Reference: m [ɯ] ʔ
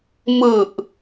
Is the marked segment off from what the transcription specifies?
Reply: no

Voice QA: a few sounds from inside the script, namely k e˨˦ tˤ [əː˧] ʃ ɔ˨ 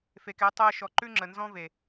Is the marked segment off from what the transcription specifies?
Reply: no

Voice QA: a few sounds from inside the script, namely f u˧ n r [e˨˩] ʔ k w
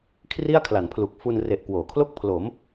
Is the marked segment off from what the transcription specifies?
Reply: no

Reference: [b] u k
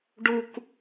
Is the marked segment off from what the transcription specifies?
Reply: yes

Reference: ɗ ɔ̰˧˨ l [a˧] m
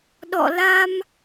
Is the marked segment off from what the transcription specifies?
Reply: no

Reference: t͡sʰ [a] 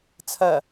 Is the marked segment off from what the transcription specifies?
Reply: yes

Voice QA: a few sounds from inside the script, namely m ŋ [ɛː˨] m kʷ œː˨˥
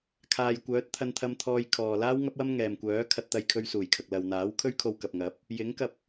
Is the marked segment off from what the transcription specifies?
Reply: no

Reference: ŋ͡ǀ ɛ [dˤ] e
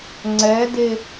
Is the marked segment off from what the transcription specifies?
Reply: yes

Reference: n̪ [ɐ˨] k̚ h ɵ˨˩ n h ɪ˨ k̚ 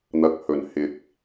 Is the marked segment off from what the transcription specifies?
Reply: no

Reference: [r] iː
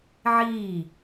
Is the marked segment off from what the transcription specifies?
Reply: yes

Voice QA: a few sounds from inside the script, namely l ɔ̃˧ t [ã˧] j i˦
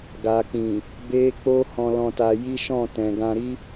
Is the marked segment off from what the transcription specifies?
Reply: yes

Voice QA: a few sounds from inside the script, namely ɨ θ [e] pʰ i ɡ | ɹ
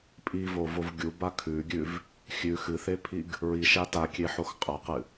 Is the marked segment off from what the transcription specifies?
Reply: no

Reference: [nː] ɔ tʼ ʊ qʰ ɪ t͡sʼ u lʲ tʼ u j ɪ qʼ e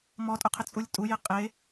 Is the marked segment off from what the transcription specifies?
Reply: yes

